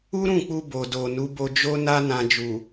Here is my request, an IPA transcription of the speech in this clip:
u˦ɾũ˦˨k͡pu˧ bo˨do˨ nu˨˦bo˧d͡ʒo˦na˦ nã˧d͡ʒu˨

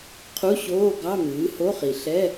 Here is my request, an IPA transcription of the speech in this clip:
qʰu˧˥˧ɕoː˧˥˧ɡɑ˧˥˧ mɨː˩˥ho˧˥˧χi˨˩ ɬɛ˧˥˧

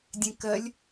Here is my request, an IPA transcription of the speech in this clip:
dʲɛ̃kɜlʲ

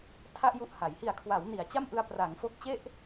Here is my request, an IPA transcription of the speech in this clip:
tʰa˥˩ʔju˦˥ʔ ha˩˦j hi˨˩a̯kʰwa˩˦w ni˩˦a̯t͡ɕa˥˩mʔɯ˧a̯ pra˩˦ŋ fo˦˥k̚t͡ɕe˥˩ʔ

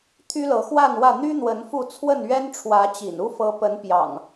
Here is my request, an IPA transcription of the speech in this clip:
t̪ʰy˦lɤ˨˦xwa˥˨nwä˥˨ n̪y˦n̪wə˨˦n fu˥˨ t͡sʰwə˥˨nɥɛ˦nʈ͡ʂʰwä˨˦t͡ɕḭ˨˩n u˦fɤ˨˦pə˨˦n pjɑ̰˨˩ŋ

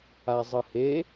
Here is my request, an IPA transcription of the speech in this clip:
azˤɯhe

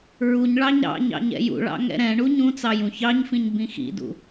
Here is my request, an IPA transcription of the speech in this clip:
ɹuɲɭɑɲ ɾɑ̰ɲɑ̰ɲ ɛ̰jṵɭɑ̰ ŋɛ̰ɾɛ̃ɳu ɲũ t͡sɑjũçɑɲfĩɲ bĩxḭdṵ

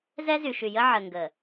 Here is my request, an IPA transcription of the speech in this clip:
zɛ˦zy˨ʃy˨jə˦ ʕə˨ŋɡə˨

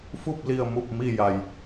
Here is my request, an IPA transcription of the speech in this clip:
fu˥˨p̚li˧˩ə̯ mu˧˩p̚ mi˧˩ja˩j

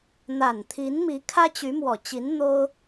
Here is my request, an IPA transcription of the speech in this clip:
n̪a˨˩nt̪ʰi˧˥nmi˧˥ kʰä˥t͡ɕy˧˥mwɔ˨˩t͡ɕi˧˥n n̪o˥ʊ̯

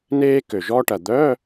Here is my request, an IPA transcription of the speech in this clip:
neː˥ kø˨˩ʒɔ˥ʈɐ˨˩ d̪œ˧˥˧

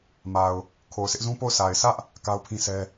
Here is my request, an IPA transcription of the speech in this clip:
ma˨ʊ̯ | kʰo˨ʊ̯ sɪ˦ʔzũ˦po˦˨ʊ̯ sʰa˨ɪ̯ sʰä˦ʔ | ka˦ʊ̯pʰĩ˦sɛ˦

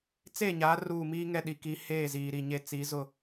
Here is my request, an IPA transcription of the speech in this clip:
t͡se˦˨ɲa˨˦ ruː˦˨ miː˦ŋɛ˦˨ɗi˨ki˨˦ heː˦˨ziː˨ ɾi˨ɲe˦ t͡si˨˦zʊ˦˨

